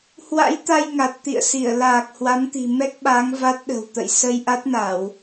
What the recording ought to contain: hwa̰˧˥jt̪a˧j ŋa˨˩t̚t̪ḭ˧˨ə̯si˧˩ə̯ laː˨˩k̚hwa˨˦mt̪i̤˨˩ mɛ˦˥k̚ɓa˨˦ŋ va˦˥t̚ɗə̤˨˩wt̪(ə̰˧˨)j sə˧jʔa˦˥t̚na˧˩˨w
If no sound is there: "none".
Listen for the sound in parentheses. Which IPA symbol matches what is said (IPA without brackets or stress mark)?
ə̰˧˨